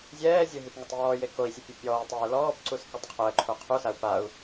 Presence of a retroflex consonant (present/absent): absent